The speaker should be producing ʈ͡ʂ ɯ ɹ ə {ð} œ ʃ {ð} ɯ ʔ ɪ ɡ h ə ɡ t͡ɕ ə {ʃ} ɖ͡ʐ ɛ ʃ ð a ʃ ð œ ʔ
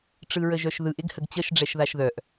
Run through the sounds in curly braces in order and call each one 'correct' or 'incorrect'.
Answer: incorrect: ʒ, correct, correct

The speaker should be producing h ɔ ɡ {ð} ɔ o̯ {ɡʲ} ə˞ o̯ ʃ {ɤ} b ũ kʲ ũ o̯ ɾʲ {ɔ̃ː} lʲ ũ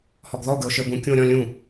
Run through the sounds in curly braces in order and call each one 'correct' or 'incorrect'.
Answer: correct, incorrect: ɡ, incorrect: ə˞, incorrect: ɔ̃

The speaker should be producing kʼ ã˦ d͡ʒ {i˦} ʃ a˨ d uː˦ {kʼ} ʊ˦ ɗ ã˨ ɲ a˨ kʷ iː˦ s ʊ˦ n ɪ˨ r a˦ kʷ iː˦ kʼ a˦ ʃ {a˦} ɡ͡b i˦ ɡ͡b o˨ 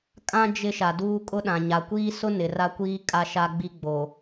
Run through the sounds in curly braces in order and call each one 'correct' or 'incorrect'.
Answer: incorrect: ɪ˦, correct, correct

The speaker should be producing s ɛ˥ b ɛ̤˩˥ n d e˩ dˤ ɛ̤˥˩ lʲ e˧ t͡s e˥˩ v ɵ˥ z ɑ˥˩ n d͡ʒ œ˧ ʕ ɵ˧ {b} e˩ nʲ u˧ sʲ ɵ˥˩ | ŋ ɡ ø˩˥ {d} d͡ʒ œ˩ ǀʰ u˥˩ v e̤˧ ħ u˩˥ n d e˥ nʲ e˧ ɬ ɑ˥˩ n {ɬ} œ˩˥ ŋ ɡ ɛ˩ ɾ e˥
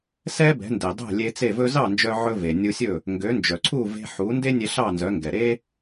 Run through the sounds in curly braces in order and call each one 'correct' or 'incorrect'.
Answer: incorrect: v, incorrect: n, incorrect: z

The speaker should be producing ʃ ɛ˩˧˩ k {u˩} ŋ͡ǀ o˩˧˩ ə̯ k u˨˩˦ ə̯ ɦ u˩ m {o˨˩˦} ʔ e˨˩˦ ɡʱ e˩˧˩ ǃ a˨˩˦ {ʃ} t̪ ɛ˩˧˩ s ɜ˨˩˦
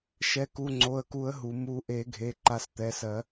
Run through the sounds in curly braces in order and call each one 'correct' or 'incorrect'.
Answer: incorrect: u˩˧˩, incorrect: u˨˩˦, incorrect: s

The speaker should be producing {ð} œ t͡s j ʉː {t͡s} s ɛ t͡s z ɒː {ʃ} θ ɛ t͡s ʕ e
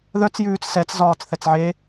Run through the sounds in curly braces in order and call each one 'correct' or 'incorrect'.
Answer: correct, correct, incorrect: t͡s

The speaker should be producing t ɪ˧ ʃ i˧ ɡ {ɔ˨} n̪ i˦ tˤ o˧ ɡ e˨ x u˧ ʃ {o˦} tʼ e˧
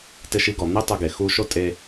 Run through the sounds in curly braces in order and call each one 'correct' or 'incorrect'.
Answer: correct, correct

